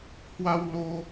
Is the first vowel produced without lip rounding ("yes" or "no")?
yes